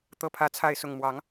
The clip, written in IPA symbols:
t̪ ɤ˥˧ pʰ ä˥˧ t͡sʰ a˥˧ ɪ̯ s ʊ˥˩ ŋ m w ɑ˧˥ ŋ

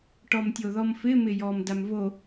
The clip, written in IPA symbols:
ʈ ɔ m tʲ o ð ɔ m f ɪ m ɪ j ɔ m d a m v o

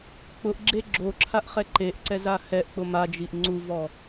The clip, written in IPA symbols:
k͡p ʊ ʔ ɡ͡ǁ e ɡ͡ǁ o ǁʰ a ʔ χ ɛ ǃ e ʔ ǀ ɛ z a h ɛ ʔ k͡p ʊ m a d͡ʒ i ʔ ŋ͡ǀ u v ɔ

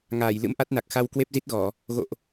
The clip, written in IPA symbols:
ŋ aː˧˩ j l ɨ̰˧˥ m ʔ a˦˥ t̚ n a˨˩ k̚ x a˧ w k w e˦˥ p̚ z i˦˥ t̚ ɣ ɔ˧˩˨ | ɣ o̰˧˨ ʔ

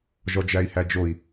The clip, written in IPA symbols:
ʒ ɔ d͡ʒ æ i̯ h æ d͡ʒ o i̯

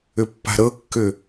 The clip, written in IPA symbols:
ʏ pː a̤ ɾ ɤ kː ʏ

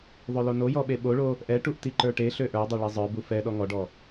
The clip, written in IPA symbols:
ðˤ ø l o n o j ɔ ɓ e ɓ o ɭ o | ʔ ɛ ʈ u ʔ t i ǃ ə˞ ʈ e ɬ ø ʔ ə˞ dˤ ø ɭ e zˤ ə˞ b u f ɛ ɗ ɔ ŋ ɔ ɖ ɔ

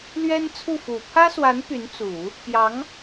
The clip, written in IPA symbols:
l ɥ ɛ˥ n t͡sʰ u˥˩ f u˨˩ pʰ ä˥ s w a˧˥ n p y˧˥ n t͡s u˨˩˦ | p j ɑ˧˥ ŋ

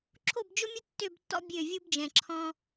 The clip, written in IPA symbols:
ǁʰ o˦˨ b d͡ʒ ʊ˦ mʲ ʊ˦ tː ø˦˨ b tː ɔ̰˦ bʲ ø˦˨ vʲ u˦ b d͡ʒ ɛ̃˨ ǁʰ ɔ̃˦

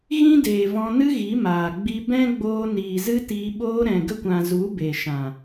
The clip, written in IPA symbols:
ɣ ĩ˦ d eː˨ v ɔ̃˧ n ɨ˦ ɣ i˨˦ m aː˨ ɡ͡b i˧ b ɛ̃˦ ɡ͡b oː˧ n iː˨ z ɨ˦ t iː˧ ɓ oː˧ ɾ ɛ̃˨ ɡ ə˧ kʷ ã˨ z u˨˦ b e˨ ʃ ã˨

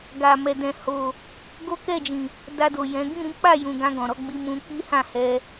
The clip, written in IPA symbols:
ɡ a˨ m ɛ˨ d ɛ̃˨ h o˨ | ɡ o˦ k ɛ˦˨ d͡ʒ ĩ˨ | d a˧ d o˨ j ɛ̃˨˦ ɡ ĩ˦˨ ɾ ĩ˨˦ k͡p a˦˨ j ũ˨ ɡ ã˧ ɡ ɔ̃˨ ɾ ɔ˧ ɡ͡b i˧ m ũ˧ k͡p i˦ h ã˦˨ h ɛ˧

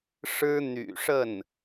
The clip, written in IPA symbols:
ʂ ɻ̩˥ n̪ y̰˨˩ ʂ ə˥˩ n

